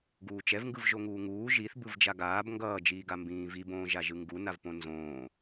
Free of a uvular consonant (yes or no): yes